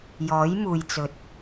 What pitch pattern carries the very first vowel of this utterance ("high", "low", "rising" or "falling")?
rising